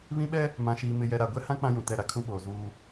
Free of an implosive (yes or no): no